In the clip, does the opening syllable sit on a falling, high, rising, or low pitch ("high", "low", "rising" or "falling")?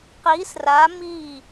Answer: rising